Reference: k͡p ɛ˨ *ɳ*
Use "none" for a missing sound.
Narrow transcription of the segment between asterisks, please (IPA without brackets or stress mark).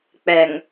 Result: ŋ